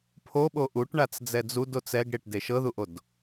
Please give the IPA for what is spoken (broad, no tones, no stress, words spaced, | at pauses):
pʰoɓo ʔuʈɳat͡s d͡zɛd͡zudo t͡sɛɡɽeʈ deʃɤðuʔod